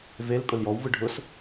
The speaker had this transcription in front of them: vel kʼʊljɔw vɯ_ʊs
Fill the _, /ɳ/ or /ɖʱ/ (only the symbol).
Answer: ɖʱ